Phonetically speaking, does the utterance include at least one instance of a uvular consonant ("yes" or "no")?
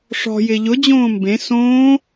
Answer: no